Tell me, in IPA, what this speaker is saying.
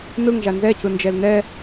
n ɯ ŋ ʒ a n z ɛ c ɯ n d͡ʒ ɛ l n ɛ

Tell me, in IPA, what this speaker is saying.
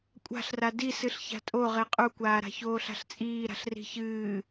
kʷʼ a̤ ɬ r a d i s ɨ ɬ ç a̤ tʼ o ʁ e qʼ u kʷ aː ɾ a̤ ç oː ɬ a̤ ɬ t͡sʼ iː ɾ a̤ ɬ r i̤ ç ɨː

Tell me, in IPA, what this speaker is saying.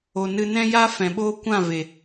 o˨ n ɨ˧ n ɛ̃˦ j a˦ f ɛ̃˨ ɓ oː˦ kʷ ã˦˨ v e˨

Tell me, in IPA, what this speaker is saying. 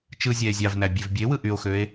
t͡ʃ ɯ zʲ æ e̯ zʲ ɑ v n æ bʲ e v bʲ e w ɯ ʔ y o̯ x ø e̯

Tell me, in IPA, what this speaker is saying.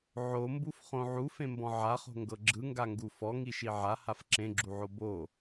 ʕ o m b u f χ õ ʕ u f ẽ m b ɔ̃ ʕ a χ o̤ ŋ ɡ ɤ ɡ͡ǁ ɯ ŋ ɡ a ŋ ɡ u f ɔ ŋ i ʃ i ʕ a h a f ǁ ẽ ɡ͡ǁ u ʕ o b o

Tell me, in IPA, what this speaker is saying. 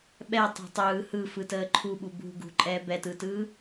ɓ ɛ tˤ ɛ̤ tˤ ɯː h ɯ f ɯ t əː ǃʰ u ɓ u b ṳ ɡ ṳ ǃʼ ɛː b ɛ t ɯ t ɯː

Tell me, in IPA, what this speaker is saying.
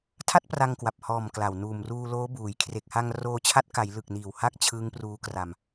tʰ a˥˩ t̚ p r a˧ ŋ k w a˨˩ p̚ h ɔː˨˩ m k l a˨˩ w n uː˨˩ m r uː˧ l oː˦˥ b uː˩˦ j kʰ r e˨˩ k̚ h a˧ ŋ r oː˧ t͡ɕʰ a˦˥ t̚ k a˩˦ j l ɯ˨˩ k̚ n iː˨˩ w h a˥˩ k̚ t͡ɕʰ ɯː˦˥ ŋ p r uː˦˥ k r a˧ m

